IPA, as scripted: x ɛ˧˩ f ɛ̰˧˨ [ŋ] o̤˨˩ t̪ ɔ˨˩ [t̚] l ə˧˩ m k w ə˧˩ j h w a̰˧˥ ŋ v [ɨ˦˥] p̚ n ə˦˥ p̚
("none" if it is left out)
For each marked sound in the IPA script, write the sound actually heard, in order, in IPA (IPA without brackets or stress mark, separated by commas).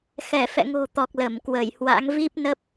ŋ, k̚, i˦˥